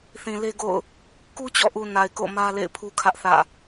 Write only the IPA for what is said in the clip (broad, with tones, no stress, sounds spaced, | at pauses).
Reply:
θ ĩ˨ l e˦ ɡ o̰˦˨ ʊ̯ | k u˦ t͡ɕ ɔ̰˦˨ ʔ u˨ n a˨ ɪ̯ k o̰˦˨ m ä˦ l ḛ˦˨ ɪ̯ pʰ u˦ kʰ ä˦ ʔ θ ä̰˦˨